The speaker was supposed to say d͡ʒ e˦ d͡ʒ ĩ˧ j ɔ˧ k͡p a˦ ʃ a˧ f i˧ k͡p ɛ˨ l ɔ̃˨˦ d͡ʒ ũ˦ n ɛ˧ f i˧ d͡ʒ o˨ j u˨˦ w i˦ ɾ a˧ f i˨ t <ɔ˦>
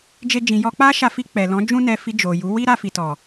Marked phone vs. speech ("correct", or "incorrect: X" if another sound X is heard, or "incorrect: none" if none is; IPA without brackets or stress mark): incorrect: ɔ˨